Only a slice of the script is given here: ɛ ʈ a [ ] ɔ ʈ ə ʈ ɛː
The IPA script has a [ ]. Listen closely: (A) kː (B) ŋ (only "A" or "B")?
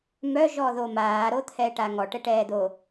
B